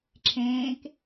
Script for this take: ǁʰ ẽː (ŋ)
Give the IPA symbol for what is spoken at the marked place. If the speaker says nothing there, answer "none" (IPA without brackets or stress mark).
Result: k